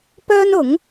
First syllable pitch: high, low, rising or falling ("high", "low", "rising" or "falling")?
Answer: high